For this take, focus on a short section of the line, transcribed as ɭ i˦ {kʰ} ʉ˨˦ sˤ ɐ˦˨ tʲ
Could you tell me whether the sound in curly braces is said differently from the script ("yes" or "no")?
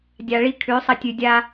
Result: no